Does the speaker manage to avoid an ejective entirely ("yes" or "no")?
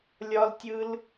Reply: yes